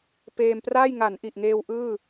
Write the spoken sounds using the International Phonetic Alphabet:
p eː˧ m p r aː˥˩ j ŋ a˩˦ n ʔ i˨˩ ʔ ŋ eː˧ w ʔ ɯː˥˩

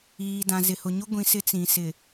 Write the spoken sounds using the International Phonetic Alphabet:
iː˨ d ã˨ z ɪ˨ h ʊ˨ ɲ ʊ˦ ɡʷ ĩ˨ s ɪ˦ t͡s ĩ˨ s ɪ˨

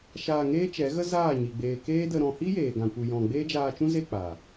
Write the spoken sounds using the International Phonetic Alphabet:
ʃ aː˧ ŋ eː˦ t͡ʃ ɛ˨˦ ɣ ə˦ z aː˦˨ ɲ i˨ ɡ͡b eː˨ k eː˦ d ə˧ ɾ ɔ̃˧ h i˦ j eː˨ ɡ ã˨ kʷ ɨ˨ j ɔ̃˨ ɡ͡b eː˦ d͡ʒ aː˧ t͡ʃ ũ˦ z e˦˨ k͡p a˨

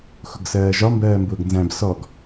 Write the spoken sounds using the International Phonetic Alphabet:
x ʊ ɡ s ɜː ʒ ɒ m b ɜː m b ʊː ɡ n z æ̃ b s ɔ ɡ

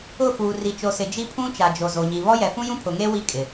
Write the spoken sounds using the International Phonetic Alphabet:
ʊ˦˨ f uː˨ r i˨ t͡ʃ o˨ s ɪ˨ d͡ʒ i˦ pʰ ũ˦ t͡ʃ a˨ d͡ʒ o˨ z o˨ ɲ i˨ β ɔ˦ j ɛ˨ f ũ˦ j ũ˦ pʰ ʊ˨ ŋ eː˦ w i˦ kʼ ɪ˨

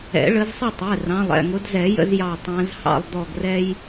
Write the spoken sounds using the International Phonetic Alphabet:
ɛ̰˨˩˦ ɭ ə˨˦ z sˤ ə˥˨ tˤ ɛ˩˧˩ r ɑ̃˩˧˩ lˠ ɛ̰˩˧˩ ŋ ʊ˨˦ d z ɛ˨˩˦ j ə̰˦ z j ɑ˧˩ tˤ æ̃˨˦ z h ɑ̰˥˨ lˠ d̪ ɔ˧˩ ɡ r ɛ˦ j

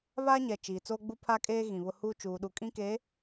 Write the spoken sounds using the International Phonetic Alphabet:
β aː˦ ɲ ɛ˨ t͡ʃ iː˨ t͡s oː˦ ɡ͡b u˦ pʰ a˦ kʼ eː˦ ɣ ĩ˨ β ʊ˦ h uː˦ t͡ʃ uː˨ ɗ u˨ kʼ ĩ˦ k eː˨˦

